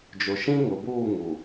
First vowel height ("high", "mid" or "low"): high